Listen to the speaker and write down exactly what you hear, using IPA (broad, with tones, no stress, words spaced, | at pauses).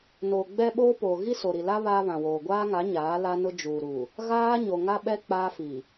noː˨ɡ͡bɛ˦ ɓoː˦poː˨ ɣi˦so˨ɾi˨la˦ βaː˦βã˨woː˨ ɡʷaː˦ŋa˨˦ ɲaː˨˦la˦nʊ˦ d͡ʒuː˨ɾu˨ | ɣaː˦ ɲo˨ ŋa˦ɓɛ˦ k͡paː˦fi˨